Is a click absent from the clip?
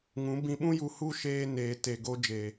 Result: yes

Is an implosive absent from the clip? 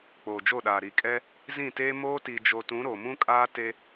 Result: no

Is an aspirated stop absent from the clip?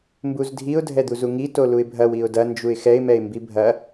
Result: yes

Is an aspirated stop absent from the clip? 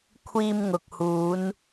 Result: no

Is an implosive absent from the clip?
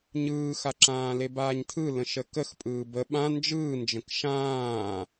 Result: no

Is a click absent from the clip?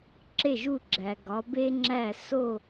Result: no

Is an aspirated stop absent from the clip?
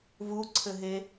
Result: no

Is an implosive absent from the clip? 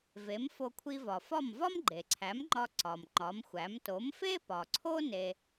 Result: yes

